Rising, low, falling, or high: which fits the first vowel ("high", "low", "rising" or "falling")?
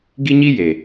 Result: high